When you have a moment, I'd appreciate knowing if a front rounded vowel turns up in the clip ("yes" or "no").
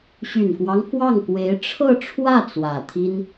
yes